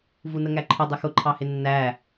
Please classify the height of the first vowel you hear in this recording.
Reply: high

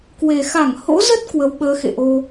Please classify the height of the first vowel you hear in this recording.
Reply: mid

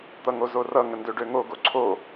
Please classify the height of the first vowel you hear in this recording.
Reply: mid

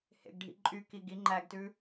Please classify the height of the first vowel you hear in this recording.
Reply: mid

